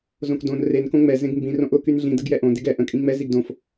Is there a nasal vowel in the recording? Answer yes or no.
yes